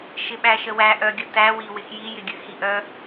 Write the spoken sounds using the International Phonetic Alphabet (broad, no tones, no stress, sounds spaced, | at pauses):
ʃ ɪ ɓ æ ʃ ə w æ ʔ œ ɡʲ ə t æ w i w ɪ x j i j ɪ ɡʲ ɨ x i ʔ œ